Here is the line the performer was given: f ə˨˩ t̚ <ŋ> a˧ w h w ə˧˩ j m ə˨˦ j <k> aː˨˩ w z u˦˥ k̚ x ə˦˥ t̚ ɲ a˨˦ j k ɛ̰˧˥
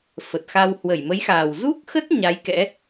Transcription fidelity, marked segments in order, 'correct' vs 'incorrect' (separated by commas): incorrect, incorrect